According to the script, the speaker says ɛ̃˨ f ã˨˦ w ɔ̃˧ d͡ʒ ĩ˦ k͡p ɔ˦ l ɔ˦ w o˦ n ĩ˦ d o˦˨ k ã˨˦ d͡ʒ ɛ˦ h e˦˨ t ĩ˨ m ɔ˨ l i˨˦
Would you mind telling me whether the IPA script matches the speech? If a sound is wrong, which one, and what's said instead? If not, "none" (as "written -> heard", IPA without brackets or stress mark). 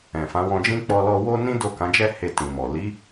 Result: none